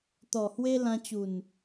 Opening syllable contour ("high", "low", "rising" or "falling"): low